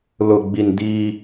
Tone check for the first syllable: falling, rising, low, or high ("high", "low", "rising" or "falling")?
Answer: low